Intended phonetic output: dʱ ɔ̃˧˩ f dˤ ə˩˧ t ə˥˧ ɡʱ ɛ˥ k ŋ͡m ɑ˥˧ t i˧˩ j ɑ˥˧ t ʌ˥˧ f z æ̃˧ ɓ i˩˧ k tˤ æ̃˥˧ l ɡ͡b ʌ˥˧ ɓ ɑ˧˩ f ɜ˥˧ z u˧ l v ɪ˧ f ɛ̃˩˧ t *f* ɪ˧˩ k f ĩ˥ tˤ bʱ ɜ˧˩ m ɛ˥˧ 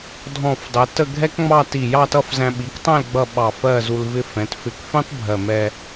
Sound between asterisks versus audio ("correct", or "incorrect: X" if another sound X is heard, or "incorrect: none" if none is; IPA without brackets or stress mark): correct